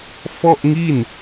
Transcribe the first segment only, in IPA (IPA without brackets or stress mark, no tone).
f